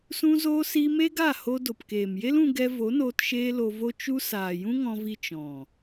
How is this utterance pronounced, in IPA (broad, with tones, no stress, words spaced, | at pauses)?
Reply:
sũ˦zoː˦si˦ me˦ɡa˦˨ho˧ do˨pkeː˨mje˦l ũ˧ɡɛ˧vo˨˦noː˧t ʃeː˦lo˧vo˦ t͡ʃu˦ saː˨jũ˦ŋɔ̃˧vi˧ t͡ʃɔ̃˨